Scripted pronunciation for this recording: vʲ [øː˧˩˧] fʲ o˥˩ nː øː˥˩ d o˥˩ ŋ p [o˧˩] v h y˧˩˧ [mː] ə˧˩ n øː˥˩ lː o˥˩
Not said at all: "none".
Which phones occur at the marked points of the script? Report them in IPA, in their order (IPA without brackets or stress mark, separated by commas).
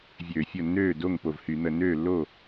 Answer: øː˧˩˧, o˧˩, n̪